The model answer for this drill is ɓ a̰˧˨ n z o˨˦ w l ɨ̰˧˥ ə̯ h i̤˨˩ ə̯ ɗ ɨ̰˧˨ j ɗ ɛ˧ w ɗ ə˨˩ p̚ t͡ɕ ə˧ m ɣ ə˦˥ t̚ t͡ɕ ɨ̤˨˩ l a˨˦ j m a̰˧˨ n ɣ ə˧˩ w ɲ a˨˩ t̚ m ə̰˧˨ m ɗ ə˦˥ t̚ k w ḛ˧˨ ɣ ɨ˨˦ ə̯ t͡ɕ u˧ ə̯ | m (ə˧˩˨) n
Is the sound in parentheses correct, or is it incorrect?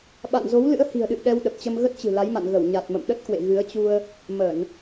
correct